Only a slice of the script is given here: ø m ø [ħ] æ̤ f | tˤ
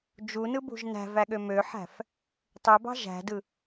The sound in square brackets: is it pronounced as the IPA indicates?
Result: yes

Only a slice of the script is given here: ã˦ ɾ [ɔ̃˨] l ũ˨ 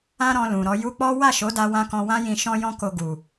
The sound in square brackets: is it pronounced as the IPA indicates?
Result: no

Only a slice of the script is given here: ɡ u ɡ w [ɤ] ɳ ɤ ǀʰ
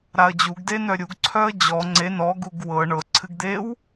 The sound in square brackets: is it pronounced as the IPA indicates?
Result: yes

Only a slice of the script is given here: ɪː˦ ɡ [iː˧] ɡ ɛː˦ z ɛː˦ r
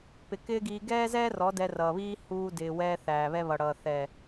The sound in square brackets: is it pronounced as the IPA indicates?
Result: yes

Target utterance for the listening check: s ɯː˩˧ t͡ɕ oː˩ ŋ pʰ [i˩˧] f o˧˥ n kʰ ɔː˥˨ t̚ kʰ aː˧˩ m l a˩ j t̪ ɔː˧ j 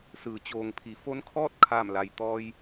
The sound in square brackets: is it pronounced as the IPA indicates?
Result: yes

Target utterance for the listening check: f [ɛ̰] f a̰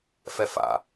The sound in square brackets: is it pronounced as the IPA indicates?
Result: no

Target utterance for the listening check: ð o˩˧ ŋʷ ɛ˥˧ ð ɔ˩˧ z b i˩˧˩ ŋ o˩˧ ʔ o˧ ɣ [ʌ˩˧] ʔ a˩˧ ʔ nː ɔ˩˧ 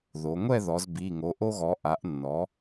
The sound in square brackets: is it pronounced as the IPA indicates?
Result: no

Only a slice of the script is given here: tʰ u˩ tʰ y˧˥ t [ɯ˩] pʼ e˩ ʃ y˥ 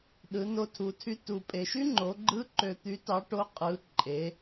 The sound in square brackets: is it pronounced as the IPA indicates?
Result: no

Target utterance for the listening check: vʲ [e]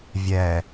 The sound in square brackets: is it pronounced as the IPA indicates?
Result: no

